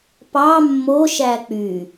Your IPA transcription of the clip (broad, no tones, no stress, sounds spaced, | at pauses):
p ɑ mː o ʃ æ k͡p y